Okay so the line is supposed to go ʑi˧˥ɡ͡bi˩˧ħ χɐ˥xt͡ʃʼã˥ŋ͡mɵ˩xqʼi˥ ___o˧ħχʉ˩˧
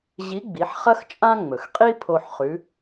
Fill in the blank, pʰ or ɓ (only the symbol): pʰ